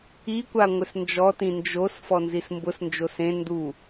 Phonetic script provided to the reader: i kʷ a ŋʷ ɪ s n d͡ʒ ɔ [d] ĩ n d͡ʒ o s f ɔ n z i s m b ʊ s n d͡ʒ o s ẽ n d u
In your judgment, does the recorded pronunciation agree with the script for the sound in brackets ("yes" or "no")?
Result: no